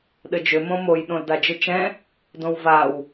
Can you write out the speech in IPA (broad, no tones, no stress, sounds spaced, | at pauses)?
ɗ ɘ d͡ʒ ʏ m õ m o j ɗ õ l d a d͡ʒ ɨ t͡ʃ ɛ̃ | d õ w v a w